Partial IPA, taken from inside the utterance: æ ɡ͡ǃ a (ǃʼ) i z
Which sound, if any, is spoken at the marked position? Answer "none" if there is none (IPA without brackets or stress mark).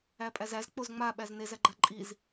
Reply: ǃʼ